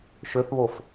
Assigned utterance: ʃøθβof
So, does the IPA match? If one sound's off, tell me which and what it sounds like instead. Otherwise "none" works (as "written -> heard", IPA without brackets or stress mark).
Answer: none